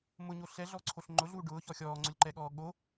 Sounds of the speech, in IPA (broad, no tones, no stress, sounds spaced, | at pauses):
m ʊ ɲ o ɬ ɛ ɮ ɔ ǀʰ o ɬ ŋ͡ǃ ʊ ɮ uː ɖ ʊː ç ɔ xʲ ɔː ŋ͡ǀ ʊ lʲ ǃ ɛ ɠ ɔː ɠ o